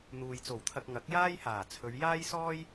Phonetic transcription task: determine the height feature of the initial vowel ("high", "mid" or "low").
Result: high